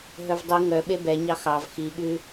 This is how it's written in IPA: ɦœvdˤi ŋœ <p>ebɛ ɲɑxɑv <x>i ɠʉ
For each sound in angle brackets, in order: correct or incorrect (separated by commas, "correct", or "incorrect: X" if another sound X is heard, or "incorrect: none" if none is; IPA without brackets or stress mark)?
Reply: incorrect: ɓ, correct